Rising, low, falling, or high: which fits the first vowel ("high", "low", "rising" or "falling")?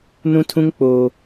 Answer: high